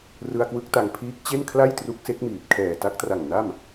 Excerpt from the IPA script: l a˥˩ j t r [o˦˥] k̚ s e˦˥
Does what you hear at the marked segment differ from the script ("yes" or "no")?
yes